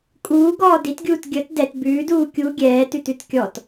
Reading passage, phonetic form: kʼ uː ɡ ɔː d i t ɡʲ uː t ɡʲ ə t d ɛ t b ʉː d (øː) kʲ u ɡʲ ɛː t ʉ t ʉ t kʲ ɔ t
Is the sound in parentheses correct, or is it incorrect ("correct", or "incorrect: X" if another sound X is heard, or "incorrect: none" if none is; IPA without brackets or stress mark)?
incorrect: uː